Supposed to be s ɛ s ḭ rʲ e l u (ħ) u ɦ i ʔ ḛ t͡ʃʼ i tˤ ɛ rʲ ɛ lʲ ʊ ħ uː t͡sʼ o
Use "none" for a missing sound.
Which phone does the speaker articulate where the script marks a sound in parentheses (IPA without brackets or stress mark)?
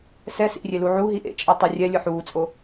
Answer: ʕ